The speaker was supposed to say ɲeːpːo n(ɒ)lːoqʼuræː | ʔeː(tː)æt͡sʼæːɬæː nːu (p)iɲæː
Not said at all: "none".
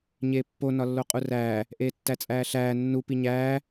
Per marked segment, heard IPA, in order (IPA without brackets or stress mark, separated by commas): ɒ, tː, p